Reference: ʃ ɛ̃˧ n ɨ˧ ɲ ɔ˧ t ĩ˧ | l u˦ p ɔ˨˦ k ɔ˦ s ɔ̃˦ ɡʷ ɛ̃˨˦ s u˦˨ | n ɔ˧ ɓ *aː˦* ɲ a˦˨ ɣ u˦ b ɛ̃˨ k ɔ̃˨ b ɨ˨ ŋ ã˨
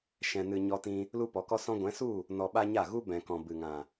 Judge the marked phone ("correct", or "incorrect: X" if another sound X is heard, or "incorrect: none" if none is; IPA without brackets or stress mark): incorrect: a˦